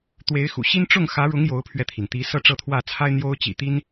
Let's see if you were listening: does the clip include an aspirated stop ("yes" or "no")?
yes